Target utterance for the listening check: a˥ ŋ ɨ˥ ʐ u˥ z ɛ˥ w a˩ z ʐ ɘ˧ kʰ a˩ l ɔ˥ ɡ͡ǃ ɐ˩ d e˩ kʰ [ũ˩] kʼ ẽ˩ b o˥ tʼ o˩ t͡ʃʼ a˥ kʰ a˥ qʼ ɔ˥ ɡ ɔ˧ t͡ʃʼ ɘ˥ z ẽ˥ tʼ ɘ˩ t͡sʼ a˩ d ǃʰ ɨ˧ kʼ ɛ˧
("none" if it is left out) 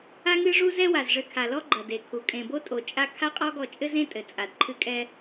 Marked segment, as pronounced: u˩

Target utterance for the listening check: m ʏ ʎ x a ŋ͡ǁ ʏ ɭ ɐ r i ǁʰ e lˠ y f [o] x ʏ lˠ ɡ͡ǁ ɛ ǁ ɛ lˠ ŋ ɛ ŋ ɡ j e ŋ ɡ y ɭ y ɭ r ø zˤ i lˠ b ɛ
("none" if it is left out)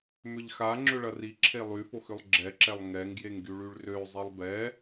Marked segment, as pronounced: o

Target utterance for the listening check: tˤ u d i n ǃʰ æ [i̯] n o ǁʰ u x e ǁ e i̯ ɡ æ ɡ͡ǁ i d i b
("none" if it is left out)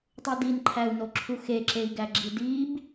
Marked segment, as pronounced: u̯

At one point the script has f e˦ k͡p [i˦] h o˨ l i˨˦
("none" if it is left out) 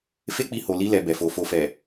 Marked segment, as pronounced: i˧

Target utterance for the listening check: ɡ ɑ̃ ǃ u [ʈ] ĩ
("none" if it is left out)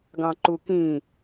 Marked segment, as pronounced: k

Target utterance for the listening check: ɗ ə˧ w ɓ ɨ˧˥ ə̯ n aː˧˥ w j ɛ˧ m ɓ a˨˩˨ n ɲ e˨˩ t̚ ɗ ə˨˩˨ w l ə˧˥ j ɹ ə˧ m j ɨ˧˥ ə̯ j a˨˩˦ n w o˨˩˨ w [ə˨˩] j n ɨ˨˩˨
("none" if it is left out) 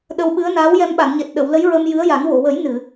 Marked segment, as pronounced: ə˨˩˦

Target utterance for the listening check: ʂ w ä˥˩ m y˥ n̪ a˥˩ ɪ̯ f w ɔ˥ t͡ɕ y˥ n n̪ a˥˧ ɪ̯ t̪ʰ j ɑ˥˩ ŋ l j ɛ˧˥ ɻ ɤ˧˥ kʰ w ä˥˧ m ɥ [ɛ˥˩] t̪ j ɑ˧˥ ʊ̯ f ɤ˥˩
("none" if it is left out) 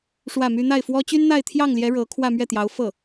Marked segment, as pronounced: ɛ˥˩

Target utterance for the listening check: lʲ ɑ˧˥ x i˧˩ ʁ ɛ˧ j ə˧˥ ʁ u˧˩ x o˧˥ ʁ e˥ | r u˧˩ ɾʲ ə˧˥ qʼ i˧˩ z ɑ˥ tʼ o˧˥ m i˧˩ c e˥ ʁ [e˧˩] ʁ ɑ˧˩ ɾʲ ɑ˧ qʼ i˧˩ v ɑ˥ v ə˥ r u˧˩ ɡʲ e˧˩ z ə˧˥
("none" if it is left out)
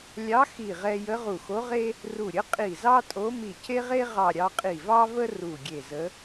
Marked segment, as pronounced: e˥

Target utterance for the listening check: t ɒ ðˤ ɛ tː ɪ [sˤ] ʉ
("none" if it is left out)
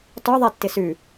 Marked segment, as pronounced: s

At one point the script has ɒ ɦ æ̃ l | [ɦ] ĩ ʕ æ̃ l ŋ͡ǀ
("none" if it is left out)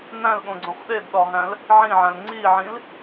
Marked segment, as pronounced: ʕ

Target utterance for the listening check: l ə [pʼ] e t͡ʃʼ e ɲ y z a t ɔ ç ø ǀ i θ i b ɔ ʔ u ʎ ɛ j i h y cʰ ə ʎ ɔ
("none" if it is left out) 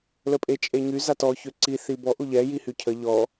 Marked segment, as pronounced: pʼ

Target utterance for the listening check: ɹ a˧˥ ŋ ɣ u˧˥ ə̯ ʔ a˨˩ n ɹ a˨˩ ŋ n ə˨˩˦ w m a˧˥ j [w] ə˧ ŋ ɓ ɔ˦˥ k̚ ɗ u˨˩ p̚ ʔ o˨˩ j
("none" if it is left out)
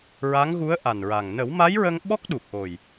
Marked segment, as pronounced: ɹ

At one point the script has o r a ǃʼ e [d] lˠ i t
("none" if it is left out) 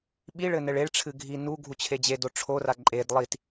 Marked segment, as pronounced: d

